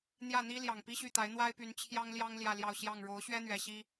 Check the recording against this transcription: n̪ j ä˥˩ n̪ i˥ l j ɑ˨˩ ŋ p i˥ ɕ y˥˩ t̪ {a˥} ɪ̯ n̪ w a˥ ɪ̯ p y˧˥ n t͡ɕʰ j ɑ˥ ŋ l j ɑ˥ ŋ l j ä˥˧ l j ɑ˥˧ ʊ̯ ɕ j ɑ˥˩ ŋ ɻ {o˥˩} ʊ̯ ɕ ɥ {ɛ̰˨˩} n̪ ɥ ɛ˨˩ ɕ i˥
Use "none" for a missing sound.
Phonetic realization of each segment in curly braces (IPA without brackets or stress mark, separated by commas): a˧˥, o˧˥, ɛ˥